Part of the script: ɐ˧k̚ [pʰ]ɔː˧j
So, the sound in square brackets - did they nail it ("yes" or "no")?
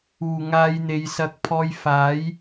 yes